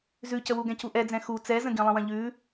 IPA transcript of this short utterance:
zʉcəwu ɡɛ̃cuʔɛd͡zɛ̃ xu t͡sɛzə̃ɡĩlˠə̃ wɐ̃ʎʉ

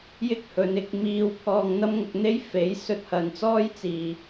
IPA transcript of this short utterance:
jɪ˥k̚hɵ˨˧nɪ˧k̚miː˧w pʰɔː˧ŋn̪ɐ˥mŋʊ˧k̚n̪e˥j fe˨˥j sɵ˧t̚hɐ˨nt͡sɔː˥jt͡siː˨˩

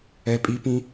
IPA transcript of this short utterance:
ɛ˩pʼi˩˧pĩ˩˧

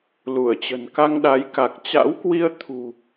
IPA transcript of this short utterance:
lu˧˩ə̯t͡ɕə̤˨˩n ka˧ŋɗa˨˦jka˨˩k̚ t͡ɕa̰˧˥wkwi˧ə̯t̪ʰṳ˨˩

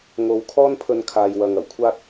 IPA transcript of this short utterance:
ŋo˧w kʰɔː˥npʰɵ˧nkʰaː˨jwɐ˨ŋ ɐ˨˩wkʷʰaː˥t̚

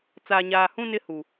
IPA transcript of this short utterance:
t͡saː˨ɲaː˨hũ˦ nɪ˦hu˨

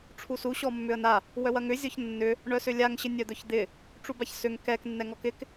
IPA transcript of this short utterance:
ʈ͡ʂʰusu ɕɔmːʏə̯na | wœwɐŋʏ zʲɔçnːʏ | ɳœsʏlʲaŋ ɕɪnʲœd̪œçd̪ɪ | ʈ͡ʂubaçsʏŋ kɛk nːɛŋɔkɪk

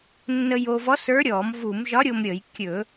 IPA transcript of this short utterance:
nːə˧jo˧vɔ˧˥ sə˞˧˥ɾʲɔ˧˩˧mvu˧˩˧m ʒɒ˧˥ɾʲo˧m ɾʲə˧˩˧jkʲɵ˧˩˧

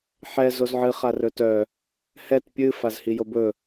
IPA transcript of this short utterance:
ħɛ zozʕɨ χarɵtœ | hɛt pʲɨ fazhijobɵ

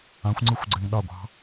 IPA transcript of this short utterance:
ãxʷŋ͡ǀɯxʷɡ͡ǀɛŋ ɗɑɡʷɑ̤

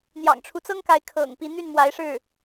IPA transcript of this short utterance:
n̪jɑ̰˨˩ŋʈ͡ʂʰu˦t͡sɤ˥ŋka˧˥ɪ̯ kʰɤ̰˨˩ŋpi˧˥ n̪y˥˩nmwa˧˥ɪ̯ʂɻ̩˥˩

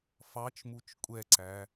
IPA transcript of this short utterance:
fɑt͡ʃmut͡ʃ kʷʼɛǀæ

